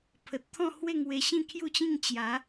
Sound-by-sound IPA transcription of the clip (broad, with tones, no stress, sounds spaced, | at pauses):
pʰ ə˨ t̚ t̪ʰ ɔ̃˥˧ h w e˥˧ ŋ w e˧ ɕ ĩ˥˧ kʰ j u˥˧ t͡ɕ ĩ˥˧ ŋ t͡ɕ j a˨˦